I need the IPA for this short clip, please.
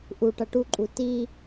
ʔ u ʈ ʌ ʈ u ǃʼ u t i

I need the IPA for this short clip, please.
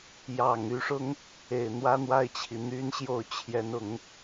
j ɑ˨˩ ŋ y˧˥ ʂ ʊ˥ ŋ | e˨˩ ɪ̯ n̪ w ä˥ n̪ w a˥˩ ɪ̯ t͡ɕʰ i˩ n̪ y˥ n ɕ j o˥˩ ʊ̯ t͡ɕʰ j ɛ˧˥ n ʊ˨˩˦ ŋ

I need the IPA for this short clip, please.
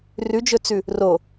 r ʉ d͡ʒ ɵ t͡s ʉ | r o

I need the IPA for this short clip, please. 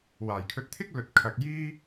w aː˨˩ j kʰ ɵ˧ t̚ t̪ʰ ɪ˥ k̚ l ɵ˧ t̚ kʰ ɐ˧ k̚ j iː˥

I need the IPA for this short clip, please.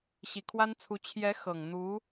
ɕ i˨˩ kʰ w a˥ n t͡sʰ u˧˥ t͡ɕʰ j ɛ˧˥ x ɤ˨˩ ŋ n̪ u˧˥

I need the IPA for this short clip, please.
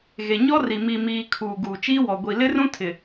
ɣ e˨ ɲ ɔ˦ r i˨ m i˨ m iː˨ kʰ uː˨ ɡ uː˨ t͡ʃ iː˦ w ɔ˨ ɡʷ i˨ l ɪ˦ r ũ˦ tʰ ɪ˨

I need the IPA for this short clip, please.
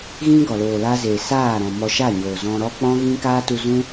ɣ ĩ˦ ɡ ɔ˨ l oː˨ l a˧ z eː˨ s aː˦˨ ɾ ɔ̃˨ m ɔ˧ ʃ a˦˨ ɲ oː˨ z ɔ̃˧ ɾ ɔ˦ k͡p ɔ̃˦ ɣ ĩ˦ k aː˦ t u˧ z ũ˦

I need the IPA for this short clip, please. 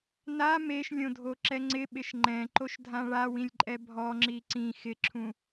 n a m e ʃ lʲ õ dʱ o ǁ ɛ ŋ͡ǀ ɪ ɓ ɪ ʃ ŋ͡ǃ ɛ̃ ǃ o ʃ dʱ ã ɭ a w ĩ lʲ ǃʼ ɛ bʱ ɔ ŋ͡ǁ i ǀ ĩ x ɪ ǁʰ ũ

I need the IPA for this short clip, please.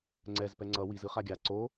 ŋ͡ǀ ɛ z p ɛ ŋ͡ǀ ʌ w i z ɯ χ a ɡʲ a ǀ o

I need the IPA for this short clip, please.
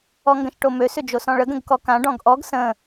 ɔ ŋ ɡ ə̃ ʃ ʈ o m ø s ʏ d͡ʒ o s ɔ̃ ɭ ə ɡ ə̃ ɡ k ɔ k ã ɖ ɔ̃ ɡ ʔ ɔ ɡ s ə̃

